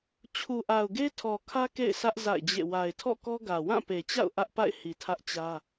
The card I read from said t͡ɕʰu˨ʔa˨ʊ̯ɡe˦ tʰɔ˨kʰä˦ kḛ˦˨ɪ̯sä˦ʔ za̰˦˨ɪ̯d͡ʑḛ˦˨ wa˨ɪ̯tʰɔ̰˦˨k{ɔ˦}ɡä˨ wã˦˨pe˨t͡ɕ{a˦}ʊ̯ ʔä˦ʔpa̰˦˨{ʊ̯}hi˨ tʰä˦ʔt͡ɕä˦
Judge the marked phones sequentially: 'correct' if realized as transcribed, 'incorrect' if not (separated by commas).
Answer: correct, incorrect, incorrect